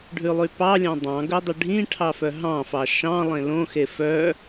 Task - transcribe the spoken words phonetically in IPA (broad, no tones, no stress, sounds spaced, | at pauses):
ɖʱ ʉ lˠ y p ɑ lʲ ɑ̃ dˤ ɑ̃ ɡ ɵ dˤ y ɖʱ ĩ ʈʰ ɑ f œ ɦ ɑ̃ f ɑ ʃ ɑ̃ lˠ ẽ l õ x e f œ